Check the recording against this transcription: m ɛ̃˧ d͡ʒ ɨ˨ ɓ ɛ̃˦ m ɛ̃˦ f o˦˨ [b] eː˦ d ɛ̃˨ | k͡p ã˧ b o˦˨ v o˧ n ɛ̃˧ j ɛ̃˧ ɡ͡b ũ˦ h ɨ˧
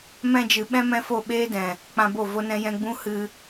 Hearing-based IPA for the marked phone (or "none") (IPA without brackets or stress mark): ɓ